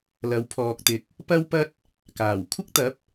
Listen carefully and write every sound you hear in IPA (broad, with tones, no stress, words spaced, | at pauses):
lɐ˨˧wpʰɔː˨k̚t̪ɪ˨˥k̚ | pɐ˥wpɐ˥t̚ | kaː˨˩w kʷʰɪ˥k̚t̪ɐ˨˥p̚